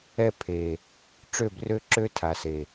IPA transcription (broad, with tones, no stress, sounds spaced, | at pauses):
ɛ˦ pʰ e˨ | ʈ͡ʂ ø˦˨ b r ø˦ ǁ ø˦ tʰ a˨ s e˨